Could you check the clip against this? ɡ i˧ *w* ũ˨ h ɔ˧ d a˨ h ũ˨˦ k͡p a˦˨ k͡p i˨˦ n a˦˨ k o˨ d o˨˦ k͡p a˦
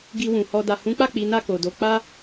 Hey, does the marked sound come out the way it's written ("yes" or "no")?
yes